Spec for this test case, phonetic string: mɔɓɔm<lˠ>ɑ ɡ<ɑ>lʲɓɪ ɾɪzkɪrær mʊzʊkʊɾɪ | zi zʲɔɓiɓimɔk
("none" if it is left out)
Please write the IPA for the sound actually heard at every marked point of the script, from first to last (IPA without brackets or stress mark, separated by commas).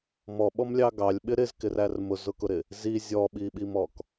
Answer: lʲ, ɑ